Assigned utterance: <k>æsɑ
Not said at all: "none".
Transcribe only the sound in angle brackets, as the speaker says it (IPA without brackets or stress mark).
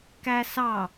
k